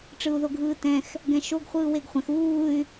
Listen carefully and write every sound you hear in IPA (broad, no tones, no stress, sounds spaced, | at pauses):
ʈ͡ʂ ɯ u̯ ð o ɡʱ ɯː t ɛ̃ x | ɡ ɛ̃ ʃ o ɡ χʷ ɯː w e ɡ χʷ ɛ̃ x uː y̯